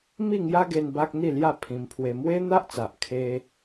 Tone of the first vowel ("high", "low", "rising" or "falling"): falling